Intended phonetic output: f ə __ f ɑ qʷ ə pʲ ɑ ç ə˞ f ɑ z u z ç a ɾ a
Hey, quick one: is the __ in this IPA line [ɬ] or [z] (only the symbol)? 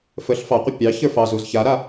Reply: ɬ